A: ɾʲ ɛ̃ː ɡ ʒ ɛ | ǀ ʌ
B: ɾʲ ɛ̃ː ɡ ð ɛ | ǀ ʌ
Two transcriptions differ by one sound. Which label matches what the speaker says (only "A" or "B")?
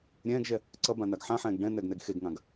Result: A